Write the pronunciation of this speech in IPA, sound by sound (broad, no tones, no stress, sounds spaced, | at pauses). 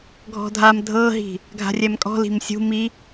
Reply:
ɡʱ ɔ̤ dʱ a m dʱ ɤ ɦ i̤ | ɡʱ a̤ rʲ ɛ m kʼ ɔ̤ l i̤ m sʲ ṳ m i